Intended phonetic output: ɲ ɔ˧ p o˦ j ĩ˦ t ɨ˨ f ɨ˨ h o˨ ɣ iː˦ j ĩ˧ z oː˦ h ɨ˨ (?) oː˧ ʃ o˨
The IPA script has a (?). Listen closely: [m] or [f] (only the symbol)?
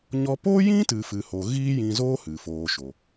f